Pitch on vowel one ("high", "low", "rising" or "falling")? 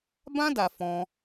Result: high